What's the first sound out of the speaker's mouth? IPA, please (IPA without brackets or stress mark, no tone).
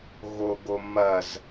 ɣ